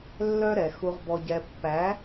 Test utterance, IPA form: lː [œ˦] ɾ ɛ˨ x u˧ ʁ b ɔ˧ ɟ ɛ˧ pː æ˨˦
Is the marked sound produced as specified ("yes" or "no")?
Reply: yes